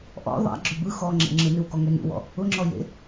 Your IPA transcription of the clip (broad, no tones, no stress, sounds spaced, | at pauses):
ʔ ɔ̰ ðˤ a̰ ɡ͡ǁ ø b ɯ x ɔ ŋ͡ǁ ḛ ŋ͡ǁ ɯ n ɯ w k ɔ ŋ ø n ṵ w ɔ̰ | ʊ ŋ͡ǁ ɔ j ḛ